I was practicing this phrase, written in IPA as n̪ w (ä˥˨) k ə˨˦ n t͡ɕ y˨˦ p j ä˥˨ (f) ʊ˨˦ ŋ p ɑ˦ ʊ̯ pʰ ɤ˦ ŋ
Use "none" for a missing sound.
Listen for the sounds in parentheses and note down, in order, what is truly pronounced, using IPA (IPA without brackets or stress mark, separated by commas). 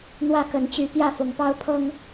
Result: ä˥˨, f